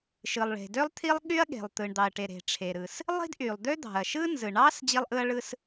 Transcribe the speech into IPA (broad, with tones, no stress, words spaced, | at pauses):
ʃɯ˩lˠ ɭe̤˩dø˥lˠt̪ʰi˥lˠɠy˥ɐ̯ ɠe̤˩lˠt̪ɯ˩ɳ d̪ɑ˩ɐ̯ʈe˩ ɾe̤˩ʈ͡ʂʰe˩ɾɯ˩s | lˠi̤˥dʔy˩lˠd̪ø˥d̪ɑ̤˩ɐ̯ ʃɯ˥ nzɯ˩ɳɑ˥s d͡ʑi˥lˠʔɯ˥ɐ̯ɭɯ˥s